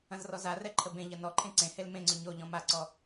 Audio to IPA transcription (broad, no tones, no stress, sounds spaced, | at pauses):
ɐ̃ z r ɔ z a r ɛ ǃʰ ə b ẽ ʎ ɐ n ɔ ǃʰ ẽ ǀ ẽ h e l m ẽ ŋ͡ǀ ʏ ɲ o ʎ ɔ̃ m a ǀ ɔ